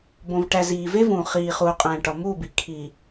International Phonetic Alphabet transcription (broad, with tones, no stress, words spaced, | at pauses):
bõ˨vʈæ˨ ziː˨ve˦ vũ˨χiː˨χuː˨ qʼæ̃˨ ʈɒ˨muː˦˨bi˨ kʰiː˨